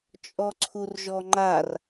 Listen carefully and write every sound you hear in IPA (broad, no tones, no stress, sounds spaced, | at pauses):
t͡ʃʼ ɔ ǀʰ u r ʒ ɔ ŋ͡ǃ a r